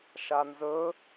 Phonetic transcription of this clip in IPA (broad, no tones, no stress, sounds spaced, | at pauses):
ʃ a n z ɵ